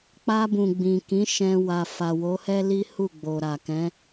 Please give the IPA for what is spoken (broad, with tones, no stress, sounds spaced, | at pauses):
k͡p a˧ b ũ˨ ɡ͡b ĩ˨ k ĩ˨˦ ʃ ɛ̃˧ w a˨ f a˨ w o˨˦ h ɛ˦ l i˦ h u˦˨ ɡ͡b o˨ ɾ a˨ k ɛ̃˨˦